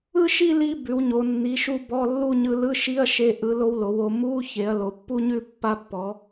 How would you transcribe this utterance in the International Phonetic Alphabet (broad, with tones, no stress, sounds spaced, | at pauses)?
ɯ˥˧ ʃ i˥˧ l i˧ b ʉ˩˧ w ɲ o˩˧ nː i˩˧ ʃ u˧ b ɔ˧˥˧ lː u˥˧ ɲ ɯ˧ l ɯ˧˥˧ ʃ i˧˥˧ ɐ̯ ʃ e˧ ʔ ɯ˩˧ l o˧ w l o˩˧ w o˩˧ m u˧˥˧ ç e˩˧ ɐ̯ l o˩˧ pː u˥˧ ɲ ʉ˥˧ pː a˧ pː ɔ˩˧